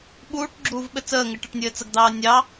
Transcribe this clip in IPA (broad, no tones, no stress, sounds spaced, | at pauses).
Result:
ɓ uː ʈ ɡ͡ǁ uː v ɓ ɘ t͡s əː ŋ ɘ ʈ ɘ ʈ nʲ ɘː t͡s ə ɡ d̪ ɑː nʲ ɑ